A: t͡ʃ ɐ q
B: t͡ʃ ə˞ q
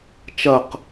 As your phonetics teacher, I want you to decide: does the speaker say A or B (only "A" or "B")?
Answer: A